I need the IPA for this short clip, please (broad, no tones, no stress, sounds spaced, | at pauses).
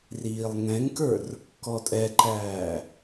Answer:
r iː lˠ ŋ ɛ̃ ŋ k ə˞ r | k ɔ tʼ ɛ ǃ æː